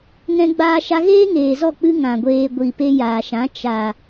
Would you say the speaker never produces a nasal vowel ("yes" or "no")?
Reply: no